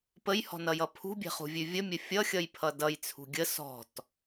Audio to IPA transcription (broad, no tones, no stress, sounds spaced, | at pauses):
p ə j h ɔ̤ n ʌ j ʌ pʰ ṳ bʲ e̤ χ ṳ vʲ ʉ vʲ ə mʲ ɘ fʲ ʌ xʲ ʌ j pʰ ʌ d ʌ j t͡sʰ ṳ ɡʲ ə s ɔ̤ t